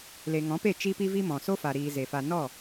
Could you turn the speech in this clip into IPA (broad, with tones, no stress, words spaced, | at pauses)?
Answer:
le˨ŋɔ̃˨˦pe˦˨ t͡ʃi˦pi˦vi˦mɔ̃˨ so˦fa˨ɾiː˨ ze˨fa˧ nɔ˦˨